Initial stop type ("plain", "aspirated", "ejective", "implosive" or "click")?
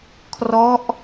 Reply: aspirated